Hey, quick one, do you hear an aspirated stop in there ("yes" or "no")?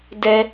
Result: no